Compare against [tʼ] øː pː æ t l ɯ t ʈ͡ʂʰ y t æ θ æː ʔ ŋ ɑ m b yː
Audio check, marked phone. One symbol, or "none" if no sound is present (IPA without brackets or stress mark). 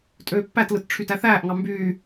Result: tʼ